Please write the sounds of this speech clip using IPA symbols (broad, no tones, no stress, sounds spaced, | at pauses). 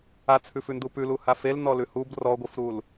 a t͡sʰ ʉ f ʉ n d u p ʉ l u h a f e l n ɔ l ʉ h u b r ɔ ɡʷ i f ɾ u l